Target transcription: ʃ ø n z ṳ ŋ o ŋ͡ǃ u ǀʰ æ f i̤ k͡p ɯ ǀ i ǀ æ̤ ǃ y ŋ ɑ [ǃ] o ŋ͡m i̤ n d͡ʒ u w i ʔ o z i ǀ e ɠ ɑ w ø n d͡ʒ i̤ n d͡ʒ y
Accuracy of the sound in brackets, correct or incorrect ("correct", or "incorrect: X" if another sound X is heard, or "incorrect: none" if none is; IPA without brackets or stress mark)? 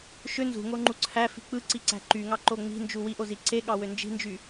correct